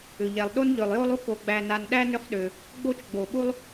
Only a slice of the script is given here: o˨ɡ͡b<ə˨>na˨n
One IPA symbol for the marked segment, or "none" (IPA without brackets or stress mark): æ˨